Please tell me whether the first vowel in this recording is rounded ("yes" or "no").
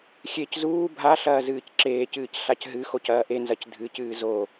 no